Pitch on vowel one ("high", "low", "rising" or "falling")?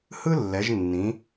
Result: high